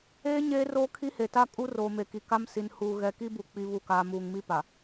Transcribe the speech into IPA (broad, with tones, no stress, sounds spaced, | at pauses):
eː˦ ɲ eː˦ r oː˦ kʰ i˦ h e˨ t a˦ kʼ u˦ r oː˨ m e˨ k i˨ k a˦ m s i˨ n h uː˨ ɣ ɛ˨ k i˦ b u˨ k͡p i˨ β u˨ k aː˨ m uː˨ ŋ m i˦ p a˨